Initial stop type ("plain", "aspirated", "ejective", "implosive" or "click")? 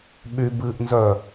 implosive